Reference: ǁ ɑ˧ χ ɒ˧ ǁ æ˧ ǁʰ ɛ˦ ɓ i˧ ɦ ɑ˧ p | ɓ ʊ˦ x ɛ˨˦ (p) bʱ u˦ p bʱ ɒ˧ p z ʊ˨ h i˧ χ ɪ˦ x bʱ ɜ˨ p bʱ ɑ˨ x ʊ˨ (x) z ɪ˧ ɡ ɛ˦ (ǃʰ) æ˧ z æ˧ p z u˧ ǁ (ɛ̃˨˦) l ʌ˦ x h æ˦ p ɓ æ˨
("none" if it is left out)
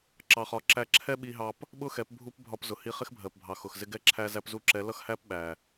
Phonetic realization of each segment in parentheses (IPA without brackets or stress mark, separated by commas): p, x, ǁʰ, ɛ˨˦